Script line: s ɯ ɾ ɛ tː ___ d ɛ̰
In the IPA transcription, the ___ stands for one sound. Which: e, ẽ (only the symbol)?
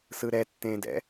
ẽ